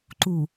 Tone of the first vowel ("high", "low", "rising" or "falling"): low